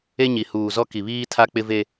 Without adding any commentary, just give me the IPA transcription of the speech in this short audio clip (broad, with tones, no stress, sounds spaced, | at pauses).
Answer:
e˦ ɲ i˨ h uː˨ z ɔ˦ k i˨ β iː˦ tʰ a˦ k͡p ɪ˦ v e˦